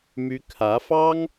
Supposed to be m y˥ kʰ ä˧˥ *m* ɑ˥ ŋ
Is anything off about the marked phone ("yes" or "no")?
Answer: yes